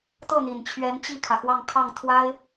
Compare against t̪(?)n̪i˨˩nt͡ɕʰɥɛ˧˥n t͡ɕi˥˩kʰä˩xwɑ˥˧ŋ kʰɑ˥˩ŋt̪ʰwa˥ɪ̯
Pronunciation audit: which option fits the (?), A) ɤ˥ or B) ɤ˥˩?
B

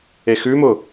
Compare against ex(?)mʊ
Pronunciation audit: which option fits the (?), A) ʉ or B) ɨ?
A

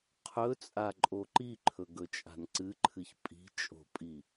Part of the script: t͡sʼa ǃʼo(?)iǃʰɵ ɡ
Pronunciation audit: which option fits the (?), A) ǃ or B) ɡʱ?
A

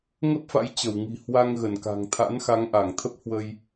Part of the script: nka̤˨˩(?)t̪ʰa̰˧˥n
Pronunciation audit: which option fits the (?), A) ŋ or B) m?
A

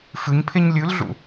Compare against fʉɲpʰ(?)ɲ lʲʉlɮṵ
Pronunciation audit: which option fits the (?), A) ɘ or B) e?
B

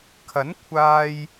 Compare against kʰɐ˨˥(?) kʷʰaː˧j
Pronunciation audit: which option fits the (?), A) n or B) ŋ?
A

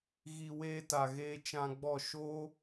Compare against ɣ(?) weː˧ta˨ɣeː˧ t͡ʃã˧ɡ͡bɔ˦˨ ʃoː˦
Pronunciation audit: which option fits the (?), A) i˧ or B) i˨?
B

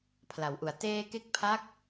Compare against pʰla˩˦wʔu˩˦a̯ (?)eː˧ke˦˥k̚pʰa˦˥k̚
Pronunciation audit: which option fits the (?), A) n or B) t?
B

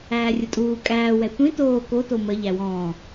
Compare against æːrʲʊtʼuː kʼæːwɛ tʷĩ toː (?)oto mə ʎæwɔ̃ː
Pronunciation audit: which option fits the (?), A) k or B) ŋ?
A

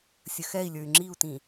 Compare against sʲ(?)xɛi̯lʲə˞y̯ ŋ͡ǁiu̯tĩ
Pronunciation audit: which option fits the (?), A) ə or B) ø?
A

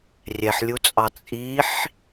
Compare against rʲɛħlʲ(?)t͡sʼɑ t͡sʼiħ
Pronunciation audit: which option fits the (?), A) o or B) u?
B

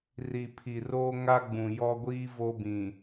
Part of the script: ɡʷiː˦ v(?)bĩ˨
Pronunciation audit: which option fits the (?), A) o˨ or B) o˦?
B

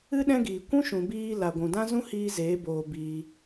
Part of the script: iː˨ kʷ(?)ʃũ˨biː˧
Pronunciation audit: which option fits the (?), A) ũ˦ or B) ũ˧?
A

